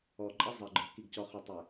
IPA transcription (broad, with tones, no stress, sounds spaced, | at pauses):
ɔ˨ ǃʼ ɛ˦ zˤ ɛ˨ ɡ͡ǃ ə˞˨ k i˨ ɡ c ɔ˨ χ ø˨ tˤ ɛ˨